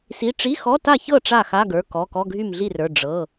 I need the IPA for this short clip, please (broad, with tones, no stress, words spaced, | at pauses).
si˧˥˧ ʈ͡ʂi˧˥˧xɔ˧˥˧ta˥˩çɤ˥˩ ʈ͡ʂa˥˩xa˧˥˧ɡə˞˩˧˩kɔ˩˧˩ kɔ˧˥˧ɡʱy˥˩mɮi˥˩rə˞˩˧˩ ɖ͡ʐɤ˩˧˩